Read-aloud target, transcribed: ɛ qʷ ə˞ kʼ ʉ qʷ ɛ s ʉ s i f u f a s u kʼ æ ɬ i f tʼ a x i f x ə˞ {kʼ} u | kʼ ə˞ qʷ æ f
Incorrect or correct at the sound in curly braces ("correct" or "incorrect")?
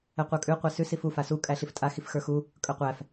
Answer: incorrect